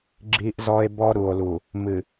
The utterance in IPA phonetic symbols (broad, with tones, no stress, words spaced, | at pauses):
ɡ͡ǁi˦ʔzɔ˦e̯ bɔ˦ɾu˨o̯lu˨ | mɨ˨